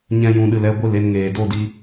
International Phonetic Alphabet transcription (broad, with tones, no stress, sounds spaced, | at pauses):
ɲ ɛ̃˧ j ũ˨ ɗ ɨ˨ l ɛ˧ ɡʷ ɨ˦˨ l e˧ n ŋ eː˨ d o˦˨ d i˧